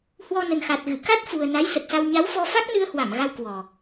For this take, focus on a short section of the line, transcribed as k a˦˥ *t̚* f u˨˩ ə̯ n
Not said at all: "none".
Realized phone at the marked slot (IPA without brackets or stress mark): t̚